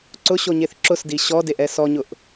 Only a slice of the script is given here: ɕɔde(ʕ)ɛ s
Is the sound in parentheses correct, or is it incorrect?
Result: incorrect